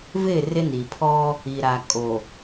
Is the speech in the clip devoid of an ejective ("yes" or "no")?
no